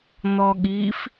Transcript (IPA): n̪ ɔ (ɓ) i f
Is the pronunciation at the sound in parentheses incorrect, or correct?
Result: incorrect